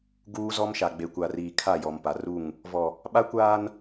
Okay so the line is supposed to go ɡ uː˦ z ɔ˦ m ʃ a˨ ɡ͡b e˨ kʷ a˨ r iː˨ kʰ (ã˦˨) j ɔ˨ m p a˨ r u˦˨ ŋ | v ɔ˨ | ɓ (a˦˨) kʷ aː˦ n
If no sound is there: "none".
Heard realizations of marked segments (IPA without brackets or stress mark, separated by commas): a˦˨, a˦